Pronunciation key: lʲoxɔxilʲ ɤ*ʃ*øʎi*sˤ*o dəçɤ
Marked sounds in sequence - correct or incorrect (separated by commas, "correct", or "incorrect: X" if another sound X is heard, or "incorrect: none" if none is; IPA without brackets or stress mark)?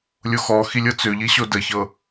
incorrect: t͡s, incorrect: ɕ